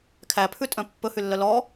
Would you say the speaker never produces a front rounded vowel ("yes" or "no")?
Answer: no